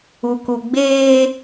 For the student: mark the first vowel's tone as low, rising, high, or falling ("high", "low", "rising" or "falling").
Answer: low